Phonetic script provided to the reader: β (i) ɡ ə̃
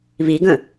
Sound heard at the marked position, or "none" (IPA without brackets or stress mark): i